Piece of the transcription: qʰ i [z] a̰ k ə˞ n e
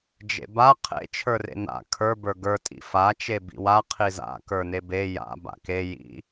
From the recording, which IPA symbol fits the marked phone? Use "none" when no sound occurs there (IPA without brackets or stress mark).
z